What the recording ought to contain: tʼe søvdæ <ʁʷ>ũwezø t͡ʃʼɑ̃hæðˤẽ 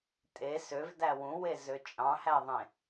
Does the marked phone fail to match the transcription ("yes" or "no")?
yes